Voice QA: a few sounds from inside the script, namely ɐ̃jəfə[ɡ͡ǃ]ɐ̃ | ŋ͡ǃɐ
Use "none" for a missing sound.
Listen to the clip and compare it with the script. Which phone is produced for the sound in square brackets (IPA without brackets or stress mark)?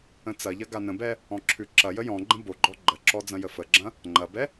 ɡ͡ǁ